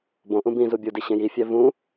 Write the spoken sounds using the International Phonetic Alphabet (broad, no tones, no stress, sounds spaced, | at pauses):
b õ ʔ ũ b ĩ z u bʲ u d i ɕ ẽ j i fʲ æ v ũ